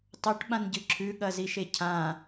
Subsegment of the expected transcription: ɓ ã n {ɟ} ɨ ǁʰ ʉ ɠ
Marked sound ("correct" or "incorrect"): correct